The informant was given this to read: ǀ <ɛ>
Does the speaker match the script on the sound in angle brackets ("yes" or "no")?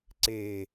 no